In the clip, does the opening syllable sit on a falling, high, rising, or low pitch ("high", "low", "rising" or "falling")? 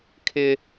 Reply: high